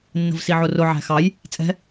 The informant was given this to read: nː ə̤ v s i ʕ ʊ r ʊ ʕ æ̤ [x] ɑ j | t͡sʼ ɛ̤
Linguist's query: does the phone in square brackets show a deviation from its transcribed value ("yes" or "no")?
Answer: no